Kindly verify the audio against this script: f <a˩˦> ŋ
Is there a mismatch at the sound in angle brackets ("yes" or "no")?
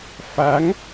no